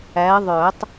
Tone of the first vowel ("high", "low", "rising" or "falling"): rising